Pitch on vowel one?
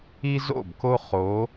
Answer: high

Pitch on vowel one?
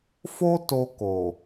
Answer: high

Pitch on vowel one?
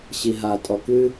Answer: low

